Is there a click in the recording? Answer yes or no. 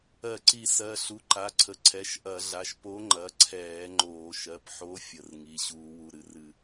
yes